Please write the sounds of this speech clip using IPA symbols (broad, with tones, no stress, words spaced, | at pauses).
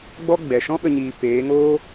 ɡ͡bɔ˦ ɡ͡bɛ˨ ʃɔ̃˦ɓə˧ ɲiː˧ peː˨˦ŋoː˦